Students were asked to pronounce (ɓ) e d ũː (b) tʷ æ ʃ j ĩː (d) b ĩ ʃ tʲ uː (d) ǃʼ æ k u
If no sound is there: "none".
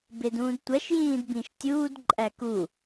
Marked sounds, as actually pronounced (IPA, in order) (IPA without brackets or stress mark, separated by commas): b, d, d, d